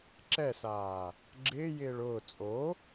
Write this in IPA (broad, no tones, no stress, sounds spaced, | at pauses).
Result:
ǁ ɛ s aː | ɡ͡ǁ ɪː j ɪː ɭ ʊː t͡sʼ o